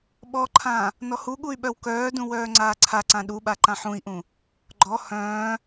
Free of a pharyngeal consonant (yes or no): no